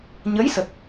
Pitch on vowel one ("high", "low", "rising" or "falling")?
rising